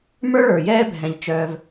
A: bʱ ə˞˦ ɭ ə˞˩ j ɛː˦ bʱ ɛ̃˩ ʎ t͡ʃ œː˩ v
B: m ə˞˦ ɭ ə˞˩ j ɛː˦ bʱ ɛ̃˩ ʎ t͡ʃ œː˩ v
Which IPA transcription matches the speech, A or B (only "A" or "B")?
B